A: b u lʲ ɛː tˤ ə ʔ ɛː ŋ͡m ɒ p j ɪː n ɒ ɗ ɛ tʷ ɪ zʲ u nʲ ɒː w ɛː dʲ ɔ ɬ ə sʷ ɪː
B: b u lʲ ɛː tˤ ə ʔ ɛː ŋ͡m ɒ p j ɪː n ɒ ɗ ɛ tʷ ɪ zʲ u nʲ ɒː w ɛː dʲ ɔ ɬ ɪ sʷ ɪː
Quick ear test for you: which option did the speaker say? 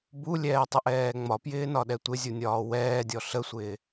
A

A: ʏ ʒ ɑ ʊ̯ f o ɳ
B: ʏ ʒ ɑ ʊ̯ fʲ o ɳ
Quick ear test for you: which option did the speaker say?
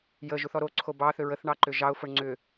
A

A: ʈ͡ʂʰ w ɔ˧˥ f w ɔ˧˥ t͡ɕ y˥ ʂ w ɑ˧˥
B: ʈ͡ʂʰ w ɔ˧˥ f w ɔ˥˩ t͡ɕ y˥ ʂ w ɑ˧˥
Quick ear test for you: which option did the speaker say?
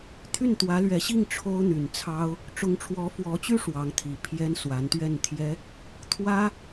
A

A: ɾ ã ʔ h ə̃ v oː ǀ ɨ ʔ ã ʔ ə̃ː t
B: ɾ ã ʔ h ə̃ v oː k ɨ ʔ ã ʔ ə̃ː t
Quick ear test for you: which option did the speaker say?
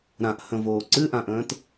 A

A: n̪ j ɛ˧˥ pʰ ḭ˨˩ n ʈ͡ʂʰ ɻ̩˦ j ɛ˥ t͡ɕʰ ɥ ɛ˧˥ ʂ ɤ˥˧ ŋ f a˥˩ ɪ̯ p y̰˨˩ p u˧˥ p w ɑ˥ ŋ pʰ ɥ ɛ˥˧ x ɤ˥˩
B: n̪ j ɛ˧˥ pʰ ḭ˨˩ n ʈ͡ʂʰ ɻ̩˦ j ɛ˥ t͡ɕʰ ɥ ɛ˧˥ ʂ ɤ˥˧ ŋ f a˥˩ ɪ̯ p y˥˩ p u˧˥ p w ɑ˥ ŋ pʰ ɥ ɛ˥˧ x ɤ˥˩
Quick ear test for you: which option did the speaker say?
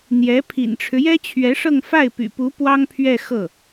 A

